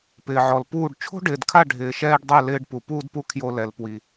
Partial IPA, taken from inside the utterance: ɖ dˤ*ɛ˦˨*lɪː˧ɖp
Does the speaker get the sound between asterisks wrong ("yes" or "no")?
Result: no